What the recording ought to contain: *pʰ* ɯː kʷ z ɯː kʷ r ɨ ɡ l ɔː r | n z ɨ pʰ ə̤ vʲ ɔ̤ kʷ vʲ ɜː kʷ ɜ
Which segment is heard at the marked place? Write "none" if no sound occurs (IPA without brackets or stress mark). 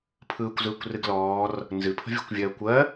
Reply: pʰ